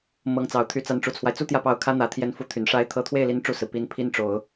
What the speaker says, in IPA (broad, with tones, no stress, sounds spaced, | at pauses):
m ɤ˧˥ ŋ t͡s ɑ˨˩ ʊ̯ t̪ʰ y˧˥ t͡s a˧˥ n ʈ͡ʂ u˨˩ t͡sʰ w a˦ ɪ̯ t͡s u˥ t̪ j ä˥˧ p ɑ˥˩ ʊ̯ kʰ ä˥ n̪ ä˨˩ t̪ʰ j ɛ˧˥ n f u˧˥ t̪ʰ y˨˩ n ʂ a˧˥ ɪ̯ t̪ʰ ɤ˧˥ t̪ʰ w e˥˩ ɪ̯ l i˧˥ n ʈ͡ʂ u˥˩ s ɹ̩˩ p i˧˥ n pʰ i˥ n ʈ͡ʂ o˨˩˦ ʊ̯